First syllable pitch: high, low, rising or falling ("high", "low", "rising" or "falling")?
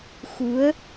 rising